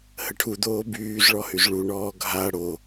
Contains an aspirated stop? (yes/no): yes